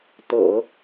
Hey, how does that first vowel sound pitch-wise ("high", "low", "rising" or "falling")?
low